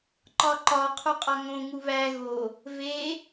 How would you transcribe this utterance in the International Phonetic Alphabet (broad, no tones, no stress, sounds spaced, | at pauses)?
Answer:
ǃ ɒ ǃ ɒ qʰ u qʼ ɒ ŋ õ ŋ u β æ ɣ o | v e